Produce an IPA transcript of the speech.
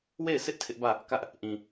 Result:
w e˦˨ ɪ̯ sʰ ɪ˦ ʔ tʰ ɪ˦ ʔ b ä˦˨ | k ä˦ ʔ | ʔ ĩ˨

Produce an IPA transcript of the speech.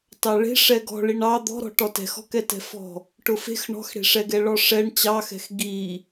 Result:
t ɑ ɭ e̤ ʂ ɛ ɡ ɔ̤ ɭ i ɳ ɑ d̪ ɔ̤ ɾ ɔ̤ ʈ ɔ t ɛ̤ x ɔ̤ k ɛ t ɛ̤ f ɔ̤ | ʈ ʊ f e̤ x ɳ ɔ̤ x ɽ e̤ ʂ ɛ ɡ ɛ ɭ ɔ ʂ ɛ ɳ t͡ɕ ɑ x ɛ̤ x ɡ i

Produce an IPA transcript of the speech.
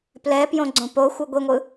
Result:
p l ɛ p j õ ɡ͡ǀ õ p o xʷ ɯ ɡʷ i ŋʷ ɯ

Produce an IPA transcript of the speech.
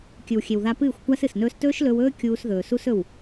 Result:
kʲ ɨ˨ w xʲ e˨ w ð a˧ p ɨː˦˨ xʷ kʷ a˦ s ɨ˨ s n ɵː˦ s t ɵː˦ ʃ l ɵ˧ w ɵː˦ kʲ uː˧ s ð ɵː˨ s u˦ s ɵ˦˨ w

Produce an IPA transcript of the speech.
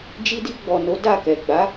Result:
d͡ʒ i˧ d i˧ ɡ͡b ɔ˨ n o˨˦ d a˦˨ k ɛ˨ ɡ͡b a˨˦

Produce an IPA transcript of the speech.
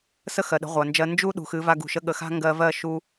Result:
s ə˦ x ɜ˨ ɗ ə̤˨˦ ʁʷ a˨ n d͡ʒ ɜ˧ n d͡ʒ u˦ ɗ ṳ˨ x ɨ˨˦ v a˧ ɡ ṳ˨ ʃ ə˧ ɠ ə˨ x a̤˦ ŋ ɡ ɜ˧ v ɜ˦˨ ʃ u˧

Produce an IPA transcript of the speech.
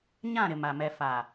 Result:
ɲ ã˦˨ ɾ ɪ˨ m a˨ m ɛ˨ f a˨

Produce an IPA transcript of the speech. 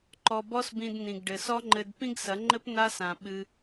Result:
ǃ ɔ˧ b ɔ˦ s b ĩ˧ d n ĩ˨ ɡ ɖ ɘ˨ s ɔ˦ ŋ͡ǃ ɘ˧ d p ĩ˦ ɡ s ɐ˨˦ ŋ͡ǃ ɘ˦ p n a˦ s ã˨ ɓ ɨ˧

